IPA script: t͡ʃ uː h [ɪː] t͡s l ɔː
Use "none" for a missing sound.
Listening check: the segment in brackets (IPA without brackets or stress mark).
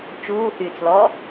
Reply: yː